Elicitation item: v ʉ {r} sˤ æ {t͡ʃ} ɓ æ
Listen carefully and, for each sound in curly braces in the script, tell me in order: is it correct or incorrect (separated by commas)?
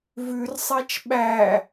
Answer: correct, correct